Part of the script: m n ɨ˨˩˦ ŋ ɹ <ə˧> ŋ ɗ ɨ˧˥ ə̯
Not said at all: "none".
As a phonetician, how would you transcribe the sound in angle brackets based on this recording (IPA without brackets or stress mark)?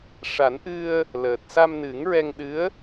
ɛ˧